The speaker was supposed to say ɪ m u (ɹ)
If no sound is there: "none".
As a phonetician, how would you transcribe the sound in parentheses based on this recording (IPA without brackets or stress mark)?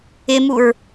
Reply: ɹ